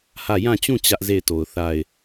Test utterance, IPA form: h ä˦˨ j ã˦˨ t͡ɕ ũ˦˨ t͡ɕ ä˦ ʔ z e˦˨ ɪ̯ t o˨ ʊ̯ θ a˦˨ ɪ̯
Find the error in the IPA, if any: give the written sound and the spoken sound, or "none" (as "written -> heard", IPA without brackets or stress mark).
none